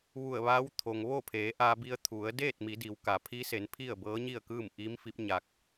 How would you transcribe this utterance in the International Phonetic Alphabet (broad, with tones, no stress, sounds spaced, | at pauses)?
ʋ u˧˩ ə̯ ʋ aː˧˥ w t̪ʰ o˩ ŋ ʋ o˥˨ pʰ eː˩˧ ʔ aː˧ b i˧ ə̯ t̪ʰ u˩˧ ə̯ d eː˥˨ t̚ m i˩˧ d i˩˧ w k a˩˧ pʰ i˧˥ s e˩˧ n pʰ i˥˨ ə̯ b ɤː˧˥ ɲ i˥˨ ə̯ k ɯː˥˨ m ʔ iː˧˥ m f i˧˥ p̚ ɲ a˧ k̚